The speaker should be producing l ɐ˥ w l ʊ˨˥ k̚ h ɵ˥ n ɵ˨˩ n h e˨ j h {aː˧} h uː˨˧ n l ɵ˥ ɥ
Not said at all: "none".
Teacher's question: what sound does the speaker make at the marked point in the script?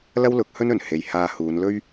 aː˧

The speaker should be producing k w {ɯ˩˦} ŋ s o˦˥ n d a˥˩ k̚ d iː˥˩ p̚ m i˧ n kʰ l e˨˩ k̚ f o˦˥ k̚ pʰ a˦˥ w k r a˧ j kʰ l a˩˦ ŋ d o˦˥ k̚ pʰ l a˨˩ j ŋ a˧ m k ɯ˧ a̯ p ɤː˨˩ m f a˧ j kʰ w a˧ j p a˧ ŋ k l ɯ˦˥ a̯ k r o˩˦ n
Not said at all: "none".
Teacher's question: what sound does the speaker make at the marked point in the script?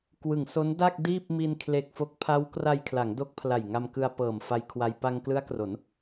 ɯ˩˦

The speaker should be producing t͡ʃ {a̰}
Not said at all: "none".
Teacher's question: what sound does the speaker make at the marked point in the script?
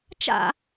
a̰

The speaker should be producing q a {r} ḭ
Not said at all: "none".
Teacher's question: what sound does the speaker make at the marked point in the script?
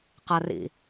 r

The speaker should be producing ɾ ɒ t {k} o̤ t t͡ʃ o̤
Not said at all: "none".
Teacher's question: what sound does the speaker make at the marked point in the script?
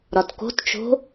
k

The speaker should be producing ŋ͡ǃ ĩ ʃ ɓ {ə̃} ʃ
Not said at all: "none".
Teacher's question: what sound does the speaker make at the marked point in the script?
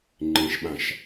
ã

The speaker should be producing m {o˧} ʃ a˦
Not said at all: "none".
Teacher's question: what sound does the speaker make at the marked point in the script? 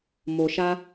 o˧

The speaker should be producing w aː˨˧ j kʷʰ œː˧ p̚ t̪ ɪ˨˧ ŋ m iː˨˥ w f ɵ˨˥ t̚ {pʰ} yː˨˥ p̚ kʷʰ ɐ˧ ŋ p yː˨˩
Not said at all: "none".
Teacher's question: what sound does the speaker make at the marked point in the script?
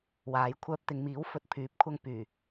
pʰ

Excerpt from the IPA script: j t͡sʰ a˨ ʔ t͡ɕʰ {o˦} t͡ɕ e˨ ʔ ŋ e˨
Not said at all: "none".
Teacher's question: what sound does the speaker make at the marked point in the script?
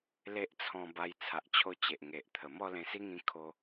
o˧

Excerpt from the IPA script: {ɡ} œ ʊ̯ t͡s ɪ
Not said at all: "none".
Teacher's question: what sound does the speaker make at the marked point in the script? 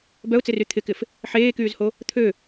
b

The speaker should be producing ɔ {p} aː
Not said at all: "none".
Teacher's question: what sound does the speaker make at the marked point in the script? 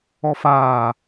f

